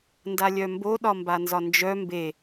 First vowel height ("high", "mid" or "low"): low